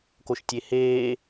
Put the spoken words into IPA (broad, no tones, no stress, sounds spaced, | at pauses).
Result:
k o ʃ tʲ e h eː